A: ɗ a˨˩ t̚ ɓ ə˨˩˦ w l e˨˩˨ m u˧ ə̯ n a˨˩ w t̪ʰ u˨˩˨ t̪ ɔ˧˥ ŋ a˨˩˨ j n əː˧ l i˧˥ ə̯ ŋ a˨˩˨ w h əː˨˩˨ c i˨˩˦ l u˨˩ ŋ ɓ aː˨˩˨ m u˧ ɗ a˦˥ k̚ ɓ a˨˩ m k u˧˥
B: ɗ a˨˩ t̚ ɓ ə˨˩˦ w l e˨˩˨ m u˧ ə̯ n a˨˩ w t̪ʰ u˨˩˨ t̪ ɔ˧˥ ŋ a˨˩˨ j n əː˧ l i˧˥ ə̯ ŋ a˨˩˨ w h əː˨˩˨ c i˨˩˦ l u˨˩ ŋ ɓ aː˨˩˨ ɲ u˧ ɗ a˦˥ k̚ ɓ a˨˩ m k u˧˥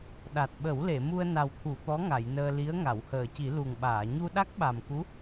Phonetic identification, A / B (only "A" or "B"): B